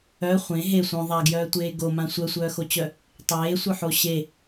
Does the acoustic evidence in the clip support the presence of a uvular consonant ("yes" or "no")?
yes